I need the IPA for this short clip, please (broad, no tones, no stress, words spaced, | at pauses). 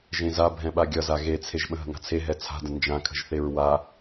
ʒẽza bʱɛ̃ɓaɡʲʌza ɣet͡sʰeʒ ɓə̃ɦə̤ŋa̤t͡sʰe ɦɛt͡sʰa̤də̃ nd͡ʒãkʰə̤ʒθeɹ wa